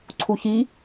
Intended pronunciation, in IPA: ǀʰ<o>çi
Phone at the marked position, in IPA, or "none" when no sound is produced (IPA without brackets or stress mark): u